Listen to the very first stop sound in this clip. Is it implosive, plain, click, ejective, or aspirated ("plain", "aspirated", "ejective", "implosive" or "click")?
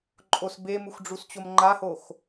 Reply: click